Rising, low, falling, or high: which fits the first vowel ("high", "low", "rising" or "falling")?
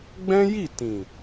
high